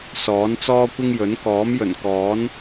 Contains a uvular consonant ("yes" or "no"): no